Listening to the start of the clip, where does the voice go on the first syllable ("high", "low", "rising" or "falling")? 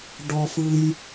high